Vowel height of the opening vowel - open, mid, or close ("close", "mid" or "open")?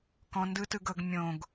mid